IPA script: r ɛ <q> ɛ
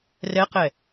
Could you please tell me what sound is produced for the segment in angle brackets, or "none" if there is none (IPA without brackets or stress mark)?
q